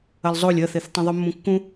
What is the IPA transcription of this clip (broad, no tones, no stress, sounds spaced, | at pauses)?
ɐ l zˤ o lʲ ɐ θ e θ tˤ ĩ ðˤ u mː ũ kː ũ